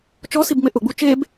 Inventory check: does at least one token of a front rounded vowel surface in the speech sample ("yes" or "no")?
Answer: no